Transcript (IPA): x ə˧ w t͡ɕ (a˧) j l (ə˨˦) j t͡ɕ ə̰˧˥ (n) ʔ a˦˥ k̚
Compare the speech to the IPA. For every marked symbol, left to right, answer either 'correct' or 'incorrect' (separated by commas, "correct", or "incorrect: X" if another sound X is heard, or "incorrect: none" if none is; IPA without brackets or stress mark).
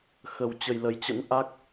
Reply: incorrect: ə˧, correct, correct